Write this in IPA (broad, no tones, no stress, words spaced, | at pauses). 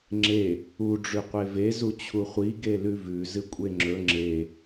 ŋ͡ǁe | u ɖ͡ʐʉqʷeve zut͡ɕʰuχʷi ɡelʉvʉ zɨkʷʼeŋ͡ǁɵ ŋ͡ǁe